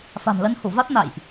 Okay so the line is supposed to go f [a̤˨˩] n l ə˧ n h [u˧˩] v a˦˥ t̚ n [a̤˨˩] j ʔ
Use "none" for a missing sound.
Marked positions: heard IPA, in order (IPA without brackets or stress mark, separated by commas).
a̤˨˩, u˧˩, a̰˧˨